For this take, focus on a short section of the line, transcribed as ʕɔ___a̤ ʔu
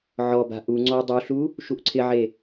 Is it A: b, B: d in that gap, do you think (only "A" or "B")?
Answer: A